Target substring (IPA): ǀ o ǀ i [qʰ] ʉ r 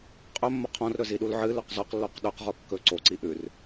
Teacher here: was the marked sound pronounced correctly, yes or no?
no